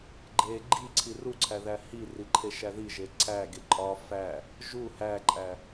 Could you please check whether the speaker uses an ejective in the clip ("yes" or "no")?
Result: yes